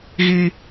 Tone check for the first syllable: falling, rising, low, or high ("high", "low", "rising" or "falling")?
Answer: high